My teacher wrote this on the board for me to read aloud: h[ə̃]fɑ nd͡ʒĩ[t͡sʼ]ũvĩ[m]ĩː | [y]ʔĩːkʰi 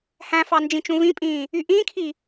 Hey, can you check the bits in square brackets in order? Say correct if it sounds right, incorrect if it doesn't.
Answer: incorrect, incorrect, incorrect, correct

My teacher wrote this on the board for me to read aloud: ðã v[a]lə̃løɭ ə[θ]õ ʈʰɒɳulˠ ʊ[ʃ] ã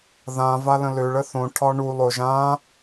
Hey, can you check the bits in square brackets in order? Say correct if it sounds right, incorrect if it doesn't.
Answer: correct, correct, incorrect

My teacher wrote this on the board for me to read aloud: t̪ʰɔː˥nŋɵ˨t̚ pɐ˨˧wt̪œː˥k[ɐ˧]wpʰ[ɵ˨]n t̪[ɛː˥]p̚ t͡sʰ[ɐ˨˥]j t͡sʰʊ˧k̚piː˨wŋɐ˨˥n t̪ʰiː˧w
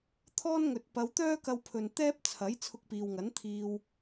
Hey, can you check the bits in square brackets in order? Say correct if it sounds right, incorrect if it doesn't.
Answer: correct, correct, correct, correct

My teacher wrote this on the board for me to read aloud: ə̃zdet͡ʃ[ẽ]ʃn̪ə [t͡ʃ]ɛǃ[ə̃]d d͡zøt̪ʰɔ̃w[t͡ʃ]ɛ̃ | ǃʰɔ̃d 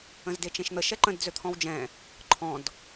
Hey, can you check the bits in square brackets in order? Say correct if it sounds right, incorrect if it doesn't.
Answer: correct, incorrect, correct, incorrect

